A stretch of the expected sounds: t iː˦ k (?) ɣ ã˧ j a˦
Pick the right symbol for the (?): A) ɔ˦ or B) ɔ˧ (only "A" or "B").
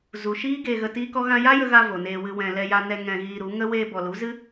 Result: A